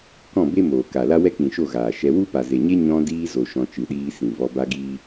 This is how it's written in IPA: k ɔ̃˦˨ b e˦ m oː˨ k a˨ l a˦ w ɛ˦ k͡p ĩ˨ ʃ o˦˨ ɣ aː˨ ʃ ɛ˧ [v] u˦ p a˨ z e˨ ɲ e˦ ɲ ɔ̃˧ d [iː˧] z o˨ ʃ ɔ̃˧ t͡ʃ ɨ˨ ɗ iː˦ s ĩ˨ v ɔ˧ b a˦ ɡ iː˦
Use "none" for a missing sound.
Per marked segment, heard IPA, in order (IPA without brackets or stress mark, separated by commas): w, iː˧